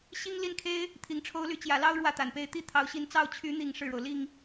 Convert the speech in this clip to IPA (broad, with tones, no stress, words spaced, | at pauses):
ɕi˥ŋ li˥˩nkʰe˥ɪ̯ | t̪ʰi˧˥ŋʈ͡ʂʰo˥ʊ̯ly˥˩ t͡ɕjä˨˩lɑ˥ʊ̯ ɻwä˥˩t̪a˨˩npe˥˧ɪ̯ t̪i˥˩ t̪ʰɑ˧˥ʊ̯ɕi˧˥n t͡sɑ˥˩ʊ̯ t͡ɕʰy˧˥n̪i˨˩ŋ ʂɻ̩˥˩ɻo˩ʊ̯ li˥˩ŋ